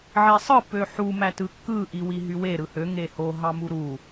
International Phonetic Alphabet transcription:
ʕesˤɯ pøħu mætɯkːɯ ʔiwiɦywe ɾɯhø ŋeho ɦɑmuɾu

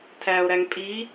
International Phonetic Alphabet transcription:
tʰæo̯ɾæŋ pʼi

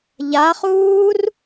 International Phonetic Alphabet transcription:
ʎaχuːr

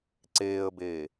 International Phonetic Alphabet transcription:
ǀeːə̯beː

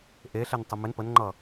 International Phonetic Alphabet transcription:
ʔeɬɛntˤə mɪn pənŋ͡ǃʌ

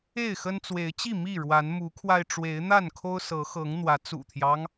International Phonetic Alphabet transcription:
e˥˨ɪ̯xə˦nt͡swe˨˦ɪ̯ t͡ɕi˥˨ mi˥˨ ɻwa˨˦nmu˨˦kʰwa˧ɪ̯ ʈ͡ʂwe˨˦ɪ̯n̪a˥˨nkʰo˦ʊ̯sɤ˨˦ xɤ˨˦ŋn̪wä˨˦ t͡sṵ˨˩t̪ʰjɑ˦ŋ

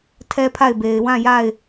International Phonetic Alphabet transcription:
tʰɛ˦pʰa˦˨ɪ̯be˨ɪ̯ wã˦˨ja˦˨ɪ̯

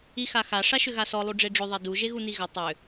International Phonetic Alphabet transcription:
ixaxa ʂaʃʏɣasɔ lˠuɖ͡ʐeɖ͡ʐʏ ðˤedu ʒeɣuniɣʏ tˤʏ

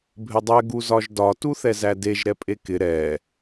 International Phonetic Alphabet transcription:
bʱɪdˤɛ ɡuzɒʒdɒ tuθɛzædeʒ ɾɛpʼekɪ ɾɛ

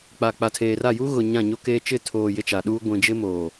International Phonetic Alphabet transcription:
k͡pa˨k͡pa˨tʰeː˨ra˦˨ ju˦ɣʊ˨ ɲã˦˨ɲo˦keː˦ t͡ʃɪ˦˨tʰoː˨ jɪ˦t͡ʃa˨ɗuː˦ ɡʷĩ˨d͡ʒɪ˦moː˨

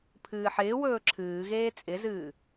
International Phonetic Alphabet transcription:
pʰɨːħɪːwɵː ǁʰɨːɣeː t͡sʼɪzɨː

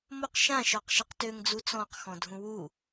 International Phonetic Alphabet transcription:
moq ʃãʃɔqʃiq tøŋd͡zu t͡sɔ̃qxɔ̃dʱũ wu

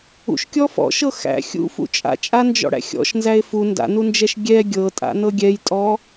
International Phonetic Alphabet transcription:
ṵʃkʲɔ fɔ̰ʃɤ xæ̰ xʲṵfṵ t͡ʃʼa̰t͡ʃʼand͡ʒɔ̰ɽæ̰ xʲɔ̰ʃnzæe̯ fu nda̰nund͡ʒɛʃ ɡʲɛ ɡʲɤtʼa̰nɤ ɡʲɛjtʼɔ

